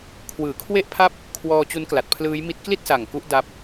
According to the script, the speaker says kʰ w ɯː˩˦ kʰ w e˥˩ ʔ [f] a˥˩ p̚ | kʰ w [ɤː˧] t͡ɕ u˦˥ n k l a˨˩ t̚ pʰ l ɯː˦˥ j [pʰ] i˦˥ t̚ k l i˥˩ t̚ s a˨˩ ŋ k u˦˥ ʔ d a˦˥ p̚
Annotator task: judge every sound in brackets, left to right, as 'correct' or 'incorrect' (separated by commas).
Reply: incorrect, incorrect, incorrect